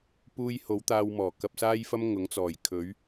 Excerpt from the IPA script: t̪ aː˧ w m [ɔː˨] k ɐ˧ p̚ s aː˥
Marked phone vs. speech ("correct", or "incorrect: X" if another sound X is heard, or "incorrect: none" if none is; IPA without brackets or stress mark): incorrect: ɔː˨˩